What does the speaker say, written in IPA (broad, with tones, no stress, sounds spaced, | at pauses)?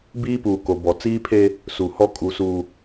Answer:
b iː˦ p uː˨ k o˨ b ɔ˨ t͡s iː˦ pʰ e˦ | s u˨ h ɔ˦ kʼ u˨ s u˨